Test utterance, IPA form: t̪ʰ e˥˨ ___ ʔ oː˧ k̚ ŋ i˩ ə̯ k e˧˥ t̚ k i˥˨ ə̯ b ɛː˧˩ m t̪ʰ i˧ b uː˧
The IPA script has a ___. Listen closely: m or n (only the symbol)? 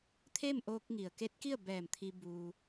m